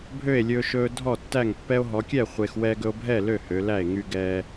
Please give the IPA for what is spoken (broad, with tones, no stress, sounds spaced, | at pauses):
bʱ ø˥˩ e̯ lʲ ɵː˧ ʃ ɵː˧ dʱ ɔ˥˩ tː æ˥˩ ŋ pː ɛ˧ o̯ ɦ ɔ˩˧ kʲ ɛː˥˩ χʷ e˧ x w ɛː˧ ɡ ɵ˧ o̯ bʱ ɛː˥˩ l ø˥˩ h ø˩˧ l æ˥˩ e̯ ŋ y˧ ɡ ɛː˧